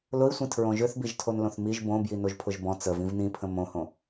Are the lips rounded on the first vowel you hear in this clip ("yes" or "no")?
yes